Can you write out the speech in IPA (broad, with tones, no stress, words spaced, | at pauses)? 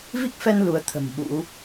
vi˦˥k̚fɛ˧n lu˨˦ə̯t̪ʰə̤˨˩m ɓṵ˧˥